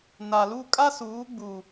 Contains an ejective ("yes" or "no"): yes